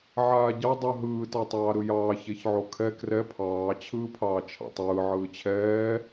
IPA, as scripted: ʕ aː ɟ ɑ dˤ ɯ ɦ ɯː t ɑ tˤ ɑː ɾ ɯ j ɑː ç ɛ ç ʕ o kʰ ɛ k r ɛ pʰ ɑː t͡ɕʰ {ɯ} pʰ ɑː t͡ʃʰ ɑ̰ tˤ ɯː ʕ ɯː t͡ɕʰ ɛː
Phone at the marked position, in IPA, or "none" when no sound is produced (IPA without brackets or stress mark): ɯː